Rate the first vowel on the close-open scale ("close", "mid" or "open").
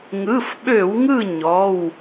close